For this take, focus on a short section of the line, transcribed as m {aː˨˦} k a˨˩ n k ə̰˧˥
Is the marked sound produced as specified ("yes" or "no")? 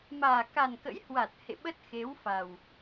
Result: no